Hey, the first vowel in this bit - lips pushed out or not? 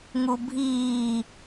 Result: yes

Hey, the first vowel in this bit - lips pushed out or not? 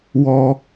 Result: yes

